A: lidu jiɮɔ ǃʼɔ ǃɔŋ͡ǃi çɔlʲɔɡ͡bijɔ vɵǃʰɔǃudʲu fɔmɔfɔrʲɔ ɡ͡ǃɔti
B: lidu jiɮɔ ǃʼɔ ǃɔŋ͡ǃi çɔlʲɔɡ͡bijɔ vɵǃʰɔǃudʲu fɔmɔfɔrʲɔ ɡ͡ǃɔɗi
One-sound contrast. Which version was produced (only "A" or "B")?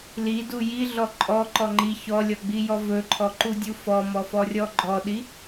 B